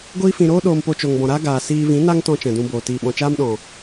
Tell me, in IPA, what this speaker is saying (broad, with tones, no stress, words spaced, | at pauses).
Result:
ɡʷiː˧fĩ˨ɾoː˦ ɗoː˧mpo˧t͡ʃo˨ŋbɔ̃˨ ɾa˦ ɡaː˨ siː˧ vĩ˨˦na˦ŋtɔ̃˧ t͡ʃɛ̃˨dũ˧boː˨ tiː˨ɓɔ̃˨t͡ʃaː˦mɗɔ̃˨